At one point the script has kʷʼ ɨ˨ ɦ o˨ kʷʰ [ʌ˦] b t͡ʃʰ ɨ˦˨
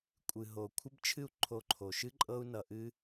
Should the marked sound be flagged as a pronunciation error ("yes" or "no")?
yes